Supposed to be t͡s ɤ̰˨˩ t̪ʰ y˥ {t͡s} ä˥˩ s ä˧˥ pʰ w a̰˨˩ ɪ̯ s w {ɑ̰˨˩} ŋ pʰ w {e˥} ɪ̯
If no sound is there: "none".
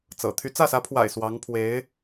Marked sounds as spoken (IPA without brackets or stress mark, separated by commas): t͡s, ɑ˧˥, e˧˥